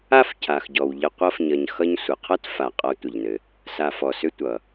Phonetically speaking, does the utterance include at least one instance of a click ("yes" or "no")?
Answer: no